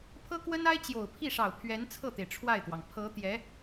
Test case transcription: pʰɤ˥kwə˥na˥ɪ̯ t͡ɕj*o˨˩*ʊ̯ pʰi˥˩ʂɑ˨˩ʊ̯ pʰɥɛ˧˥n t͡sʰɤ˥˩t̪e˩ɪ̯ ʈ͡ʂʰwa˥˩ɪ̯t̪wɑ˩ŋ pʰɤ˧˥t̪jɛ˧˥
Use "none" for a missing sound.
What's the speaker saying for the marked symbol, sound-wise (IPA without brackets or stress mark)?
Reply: o˨˩